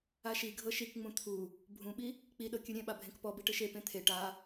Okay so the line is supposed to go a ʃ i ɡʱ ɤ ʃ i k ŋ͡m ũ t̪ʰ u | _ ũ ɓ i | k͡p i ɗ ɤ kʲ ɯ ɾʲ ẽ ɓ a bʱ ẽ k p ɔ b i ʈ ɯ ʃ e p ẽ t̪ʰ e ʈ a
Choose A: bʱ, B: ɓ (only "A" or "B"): A